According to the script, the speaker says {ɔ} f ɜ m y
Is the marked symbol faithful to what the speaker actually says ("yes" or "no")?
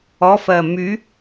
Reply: yes